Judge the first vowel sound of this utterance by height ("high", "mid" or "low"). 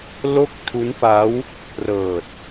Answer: mid